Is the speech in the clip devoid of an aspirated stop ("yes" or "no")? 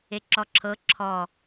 no